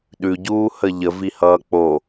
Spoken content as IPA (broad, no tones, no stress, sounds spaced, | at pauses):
ɗ ʉ ɟ uː h ə ʎ ə v i h ʌː k͡p o